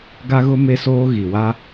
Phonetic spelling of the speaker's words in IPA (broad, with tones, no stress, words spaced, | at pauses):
ɡa˦ɣʊ˦ me˦soː˦ ɣi˨wa˦